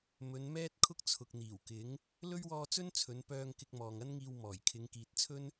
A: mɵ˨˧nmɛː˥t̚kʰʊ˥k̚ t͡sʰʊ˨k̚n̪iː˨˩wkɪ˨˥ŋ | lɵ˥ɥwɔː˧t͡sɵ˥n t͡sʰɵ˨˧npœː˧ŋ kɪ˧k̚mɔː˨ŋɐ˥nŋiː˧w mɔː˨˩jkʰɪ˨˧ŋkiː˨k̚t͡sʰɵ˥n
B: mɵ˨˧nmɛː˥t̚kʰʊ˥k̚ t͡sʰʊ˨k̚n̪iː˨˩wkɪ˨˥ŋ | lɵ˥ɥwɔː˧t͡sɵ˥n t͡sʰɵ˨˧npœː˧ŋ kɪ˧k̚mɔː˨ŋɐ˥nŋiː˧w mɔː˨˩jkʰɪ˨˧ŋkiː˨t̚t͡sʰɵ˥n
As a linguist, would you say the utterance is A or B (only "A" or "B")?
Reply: B